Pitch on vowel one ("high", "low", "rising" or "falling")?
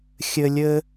high